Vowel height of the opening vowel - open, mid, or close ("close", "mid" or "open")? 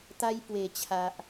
open